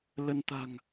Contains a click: no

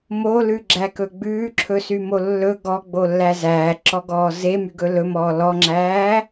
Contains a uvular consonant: no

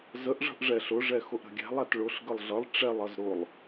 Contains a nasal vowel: no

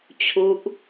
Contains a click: no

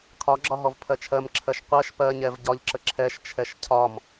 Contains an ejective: no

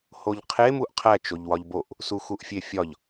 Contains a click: no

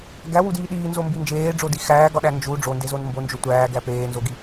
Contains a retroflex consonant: yes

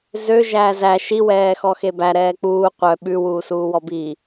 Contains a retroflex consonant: no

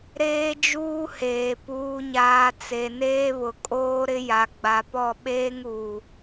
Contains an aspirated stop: no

